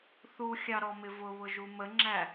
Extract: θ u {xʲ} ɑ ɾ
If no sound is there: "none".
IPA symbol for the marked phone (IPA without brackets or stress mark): xʲ